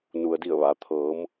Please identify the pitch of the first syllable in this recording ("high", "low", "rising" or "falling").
low